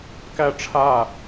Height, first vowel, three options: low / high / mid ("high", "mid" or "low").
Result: low